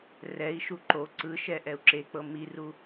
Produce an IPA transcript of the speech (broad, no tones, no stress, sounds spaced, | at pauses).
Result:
r ɛ i̯ ʃ u ǃ o ǀ ɯ ʃ ɛ ʔ ɛ u̯ ǁ e k͡p ɤ m i r u